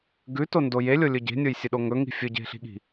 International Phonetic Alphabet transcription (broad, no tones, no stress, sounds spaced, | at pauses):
ɡ ʉ t o n d o j e lʲ o lʲ ɵ ɟ e̤ nʲ o j sʲ ɨ ɗ o ŋ ɵ ŋ i̤ fʲ ɵ ɟ e̤ ɬ i̤ ɠ i̤